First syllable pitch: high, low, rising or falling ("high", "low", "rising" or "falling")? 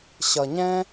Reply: low